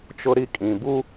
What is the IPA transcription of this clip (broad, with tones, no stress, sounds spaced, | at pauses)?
t͡ʃ ʊ˦ ɾ i˦ kʼ ĩ˨ b u˦